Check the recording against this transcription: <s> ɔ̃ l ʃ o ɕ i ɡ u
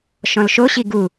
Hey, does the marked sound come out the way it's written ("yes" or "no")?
no